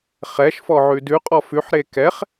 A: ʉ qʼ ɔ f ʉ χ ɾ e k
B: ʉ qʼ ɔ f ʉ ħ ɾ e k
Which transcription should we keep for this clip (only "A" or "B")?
B